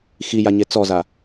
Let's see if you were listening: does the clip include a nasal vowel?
no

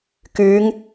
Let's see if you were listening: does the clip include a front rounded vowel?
yes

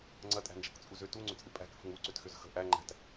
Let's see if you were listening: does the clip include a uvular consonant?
no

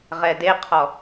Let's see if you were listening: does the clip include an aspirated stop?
yes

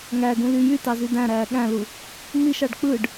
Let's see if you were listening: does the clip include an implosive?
yes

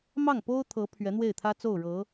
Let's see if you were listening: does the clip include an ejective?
no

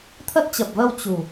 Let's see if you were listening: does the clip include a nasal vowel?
no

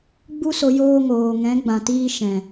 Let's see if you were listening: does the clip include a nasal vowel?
yes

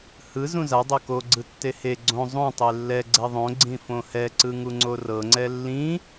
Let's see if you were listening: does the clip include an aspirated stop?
no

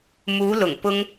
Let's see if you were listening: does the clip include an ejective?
no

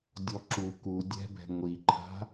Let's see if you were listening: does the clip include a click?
yes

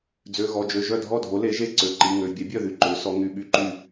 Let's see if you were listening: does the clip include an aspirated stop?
no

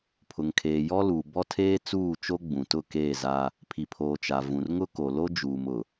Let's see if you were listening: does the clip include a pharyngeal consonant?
no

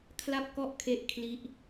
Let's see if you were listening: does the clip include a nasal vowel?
no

